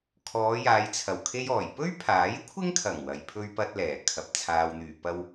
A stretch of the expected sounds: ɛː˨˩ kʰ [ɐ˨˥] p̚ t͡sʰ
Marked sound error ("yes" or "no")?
yes